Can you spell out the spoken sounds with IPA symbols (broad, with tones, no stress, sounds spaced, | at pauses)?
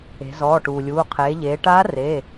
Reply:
e̤˩˧ z ɔː˩˧˩ ʈ uː˩ lʲ uː˩˧˩ qʰ eː˩˧ ʎ eː˩˧ ʈ aː˧˥ r e˩˧˩